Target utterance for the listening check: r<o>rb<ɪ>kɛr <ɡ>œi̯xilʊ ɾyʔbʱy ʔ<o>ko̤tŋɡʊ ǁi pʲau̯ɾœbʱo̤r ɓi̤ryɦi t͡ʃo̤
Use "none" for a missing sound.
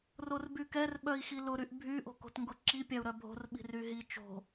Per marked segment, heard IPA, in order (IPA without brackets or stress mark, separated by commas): o, y, ɓ, o̤